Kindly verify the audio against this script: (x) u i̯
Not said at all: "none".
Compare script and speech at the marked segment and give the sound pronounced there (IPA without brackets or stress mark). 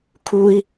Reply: kʰ